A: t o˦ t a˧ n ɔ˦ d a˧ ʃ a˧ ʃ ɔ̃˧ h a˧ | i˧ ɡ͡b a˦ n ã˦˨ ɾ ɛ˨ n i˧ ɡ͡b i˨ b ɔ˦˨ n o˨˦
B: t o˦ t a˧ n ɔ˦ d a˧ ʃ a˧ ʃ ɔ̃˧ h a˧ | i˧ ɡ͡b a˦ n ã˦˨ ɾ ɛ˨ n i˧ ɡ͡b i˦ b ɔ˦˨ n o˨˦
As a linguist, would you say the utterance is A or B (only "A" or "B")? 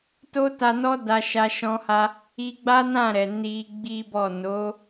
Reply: B